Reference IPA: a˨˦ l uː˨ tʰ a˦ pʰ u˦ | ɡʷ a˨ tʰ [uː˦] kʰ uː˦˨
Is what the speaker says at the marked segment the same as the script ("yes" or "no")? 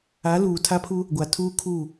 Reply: yes